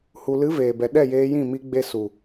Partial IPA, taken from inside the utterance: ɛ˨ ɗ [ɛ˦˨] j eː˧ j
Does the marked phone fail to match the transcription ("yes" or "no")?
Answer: no